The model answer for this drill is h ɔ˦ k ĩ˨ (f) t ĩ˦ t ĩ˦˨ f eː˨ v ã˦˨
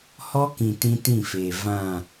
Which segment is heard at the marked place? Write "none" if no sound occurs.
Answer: none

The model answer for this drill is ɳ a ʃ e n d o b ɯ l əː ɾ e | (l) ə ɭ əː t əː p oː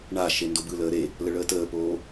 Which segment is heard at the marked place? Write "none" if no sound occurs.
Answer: l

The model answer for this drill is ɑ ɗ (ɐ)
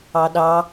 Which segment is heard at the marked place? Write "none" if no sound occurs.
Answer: ɑ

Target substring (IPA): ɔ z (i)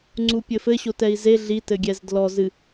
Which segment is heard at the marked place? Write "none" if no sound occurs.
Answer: ɨ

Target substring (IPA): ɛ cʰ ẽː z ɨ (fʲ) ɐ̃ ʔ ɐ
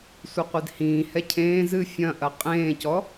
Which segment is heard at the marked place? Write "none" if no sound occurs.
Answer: fʲ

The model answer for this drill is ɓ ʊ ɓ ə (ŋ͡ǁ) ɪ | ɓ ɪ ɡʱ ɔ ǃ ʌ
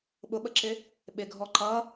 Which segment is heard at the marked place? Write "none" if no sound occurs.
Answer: ǁ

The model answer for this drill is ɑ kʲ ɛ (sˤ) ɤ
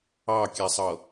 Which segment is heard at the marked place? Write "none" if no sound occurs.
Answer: sˤ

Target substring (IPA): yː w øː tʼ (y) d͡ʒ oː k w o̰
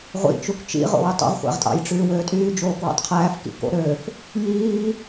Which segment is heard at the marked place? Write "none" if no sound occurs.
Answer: yː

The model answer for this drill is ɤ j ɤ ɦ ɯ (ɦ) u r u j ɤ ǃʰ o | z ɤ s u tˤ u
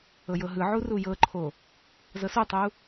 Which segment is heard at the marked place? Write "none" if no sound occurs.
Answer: ʕ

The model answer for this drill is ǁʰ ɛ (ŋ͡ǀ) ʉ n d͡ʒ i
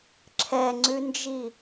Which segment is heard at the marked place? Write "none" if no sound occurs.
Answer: ŋ͡ǀ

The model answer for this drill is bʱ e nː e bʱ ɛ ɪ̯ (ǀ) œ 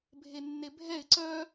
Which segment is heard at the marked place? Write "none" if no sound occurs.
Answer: ǀ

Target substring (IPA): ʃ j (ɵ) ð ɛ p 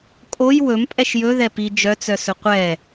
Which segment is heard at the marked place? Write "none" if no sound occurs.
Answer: ɵ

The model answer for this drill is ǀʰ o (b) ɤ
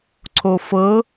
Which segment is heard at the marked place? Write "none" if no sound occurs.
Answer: f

